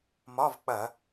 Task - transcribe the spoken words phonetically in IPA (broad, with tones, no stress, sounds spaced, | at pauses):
m ɒ˧˥˧ v k͡p ɐ˧˩˧